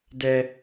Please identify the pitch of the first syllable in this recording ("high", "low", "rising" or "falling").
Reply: high